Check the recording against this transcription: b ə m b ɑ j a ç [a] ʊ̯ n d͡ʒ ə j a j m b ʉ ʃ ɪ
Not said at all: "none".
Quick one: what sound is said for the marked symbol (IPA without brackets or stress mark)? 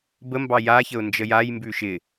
ə